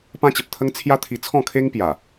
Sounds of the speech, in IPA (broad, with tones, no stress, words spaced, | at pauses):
pã˦t͡ɕə˨p̚t̪ʰə˦ŋ t͡sʰja˦t̪ʰi˧t͡sʰɔ̃˥˧ kʰe˦ŋpja˨˩